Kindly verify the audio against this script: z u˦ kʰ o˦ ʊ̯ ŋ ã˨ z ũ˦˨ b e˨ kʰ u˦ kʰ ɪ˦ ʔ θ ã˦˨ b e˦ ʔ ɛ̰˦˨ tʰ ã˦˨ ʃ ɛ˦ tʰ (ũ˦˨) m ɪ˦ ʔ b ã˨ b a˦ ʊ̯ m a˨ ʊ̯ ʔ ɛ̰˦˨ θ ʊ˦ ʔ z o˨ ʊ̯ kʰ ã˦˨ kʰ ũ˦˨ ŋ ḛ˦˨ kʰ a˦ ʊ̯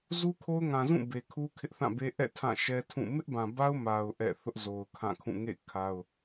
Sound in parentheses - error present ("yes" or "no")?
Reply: no